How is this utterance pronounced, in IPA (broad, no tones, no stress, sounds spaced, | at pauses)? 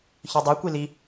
ç œ dˤ u kʷ i l i